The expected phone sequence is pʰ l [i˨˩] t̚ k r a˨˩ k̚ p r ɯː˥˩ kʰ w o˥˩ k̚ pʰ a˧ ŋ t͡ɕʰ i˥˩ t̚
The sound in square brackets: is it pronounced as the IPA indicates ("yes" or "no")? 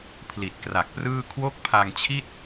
yes